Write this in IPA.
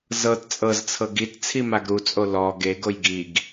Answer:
z ɤ t t͡sʼ ɤ z t͡sʰ ɤ ɡ i t t͡sʰ i m a ɡ ɾ u t͡sʼ o l ɔ ɡ e ɡ o j ɡ i ɡ

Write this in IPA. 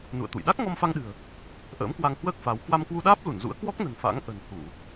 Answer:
n ṵ˧˨ ə̯ t̪ ṵ˧˨ j ɗ a˦˥ k̚ ŋ ɔ˧ m f a˧ ŋ ɗ ɨ̤˨˩ ə̯ | ʔ ə̰ː˧˥ m k w a˧ ŋ h w əː˦˥ k̚ f a˨˦ w k w a˧ m k w u˧ ɗ aː˦˥ p̚ l u˧˩ n z ṵ˧˥ ə̯ k w ɔ˦˥ k̚ n ə̤˨˩ n f a̰˧˥ ŋ ʔ ə̤˨˩ n h u˧˩˨

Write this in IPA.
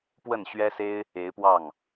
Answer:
p w ə˥˩ n ɕ ɥ ɛ˥ s e˥ ɪ̯ | e˧˥ ɪ̯ p w ɑ˥˩ ŋ

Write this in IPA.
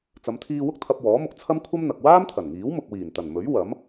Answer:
t͡s ɐ˨˧ m t̪ʰ iː˧ w ʊ˥ k̚ t̪ʰ ɐ˧ p̚ w ɔː˨˥ m ʊ˧ k̚ t͡sʰ ɐ˥ m kʷʰ ɐ˥ m n̪ ɐ˨ k̚ w aː˥ m t̪ʰ ɐ˨˩ n ŋ iː˨˥ w m ʊ˨ k̚ w iː˨˩ n t̪ ɐ˨˩ n m ɵ˨˥ ɥ w ɐ˨˥ m

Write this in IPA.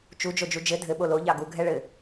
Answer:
t͡ʃ u d͡ʒ o d͡ʒ u d͡ʒ ɘ dʱ ɘ ɓ o l o ʎ ɑ ɡ u ɡʱ ɛ ɭ ɘ

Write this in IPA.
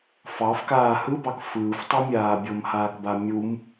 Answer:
f ɑ f k aː h ɯ b ɑ k f ɯː f tˤ a mʲ aː bʲ o m h aː k b a mʲ u m

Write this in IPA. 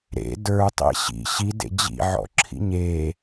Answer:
ɾ ḛ d ə˞ tˤ ḛ ɕ ḭ ɕ i d ḛ d͡ʑ ḭ ʕ ɔ̰ ǁʰ ḭ ɲ e

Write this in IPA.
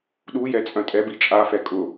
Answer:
ɗ u j ɛ t͡sʼ œ̃ tʼ ɛ b i t͡ʃʼ a f ɛ kʼ ʊ

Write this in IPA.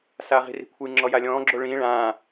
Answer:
s aː ʁ i̤ r i̤ kʷʰ ɯ ŋ͡ǁ ɔ j a lʲ ɔ̃ː ɡ͡ǁ o ɭ ĩː ɭ ãː

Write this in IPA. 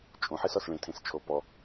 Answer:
t͡ʃʼ ũ ħ i s ɔ s ɭ ĩ tʰ ĩ s t͡ʃʰ o p ɔ

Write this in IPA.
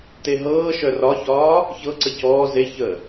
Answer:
t e ɦ ɤː ʃ œ r ɒ ç ɒː | ç ɤ ǀ ə c ɔː z e ç əː

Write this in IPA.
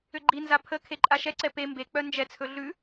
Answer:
ʏ ɡ͡ǃ i n z a pʰ ə kʰ e ǃʼ a ʃ ɛ ǀ ɛ p e m b e k͡p œ n d͡ʒ ɛ t͡sʰ ɵ ɮ ʉ

